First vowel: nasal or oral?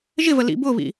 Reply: oral